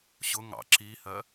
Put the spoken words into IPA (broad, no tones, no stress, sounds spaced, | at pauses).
ɕ ʊ ŋ ɑ̰ ǁ i h ɜ